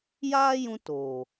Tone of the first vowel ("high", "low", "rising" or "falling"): high